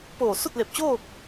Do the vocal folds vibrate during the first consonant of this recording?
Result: no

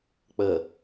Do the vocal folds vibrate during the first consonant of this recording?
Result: no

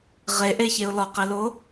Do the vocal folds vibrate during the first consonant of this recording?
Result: yes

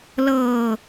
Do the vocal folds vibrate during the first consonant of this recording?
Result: yes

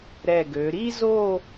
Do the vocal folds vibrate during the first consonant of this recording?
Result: yes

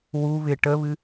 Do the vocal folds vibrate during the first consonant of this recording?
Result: yes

